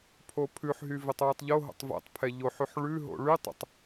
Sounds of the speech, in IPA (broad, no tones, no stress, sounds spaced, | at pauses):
pʰ o pʰ ʉ ħ ɦ y v e tˤ w ø tˤ ʎ o ɦ o̰ tˤ v ɛ̰ tˤ pʰ ɛ ʎ o ħ y ħ ɭ ʉ ɦ o̰ ɭ y tˤ o̰ tˤ